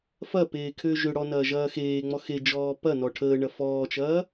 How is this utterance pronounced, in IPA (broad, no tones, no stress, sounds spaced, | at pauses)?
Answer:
f ɐ p eː kʰ ø ʒ ø ɽ ɔ n ɐː ʒ ɐː x eː ŋ͡m ɔ x e d͡ʒ ɔː p ɐ n ɔ ʈʰ əː ɳ ɐ f ɔː t͡ʃ ɐː